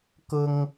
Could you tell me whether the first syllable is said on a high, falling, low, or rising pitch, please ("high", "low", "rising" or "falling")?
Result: high